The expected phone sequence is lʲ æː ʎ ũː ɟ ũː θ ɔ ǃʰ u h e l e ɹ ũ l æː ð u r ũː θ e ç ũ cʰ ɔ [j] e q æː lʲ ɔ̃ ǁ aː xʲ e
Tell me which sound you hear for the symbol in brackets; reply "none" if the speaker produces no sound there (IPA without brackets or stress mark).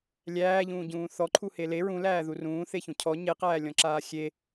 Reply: ɲ